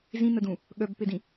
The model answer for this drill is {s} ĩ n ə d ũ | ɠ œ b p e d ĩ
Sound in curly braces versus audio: incorrect: z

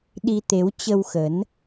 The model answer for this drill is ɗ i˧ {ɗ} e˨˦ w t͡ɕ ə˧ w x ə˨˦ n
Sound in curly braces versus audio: incorrect: t̪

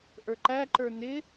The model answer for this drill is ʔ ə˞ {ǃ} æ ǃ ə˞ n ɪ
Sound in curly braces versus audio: correct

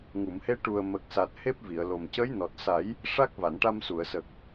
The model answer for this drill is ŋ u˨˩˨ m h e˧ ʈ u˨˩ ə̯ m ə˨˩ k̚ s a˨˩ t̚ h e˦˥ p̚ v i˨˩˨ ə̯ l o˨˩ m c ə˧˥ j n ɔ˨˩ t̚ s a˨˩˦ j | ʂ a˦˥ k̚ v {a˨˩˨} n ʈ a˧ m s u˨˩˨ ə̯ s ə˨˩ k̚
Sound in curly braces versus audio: correct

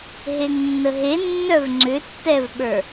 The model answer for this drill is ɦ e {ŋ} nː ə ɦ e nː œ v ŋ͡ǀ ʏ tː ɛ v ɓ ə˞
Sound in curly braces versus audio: correct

